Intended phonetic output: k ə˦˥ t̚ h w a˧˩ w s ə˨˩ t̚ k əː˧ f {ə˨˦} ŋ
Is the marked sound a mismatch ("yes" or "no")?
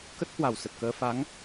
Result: yes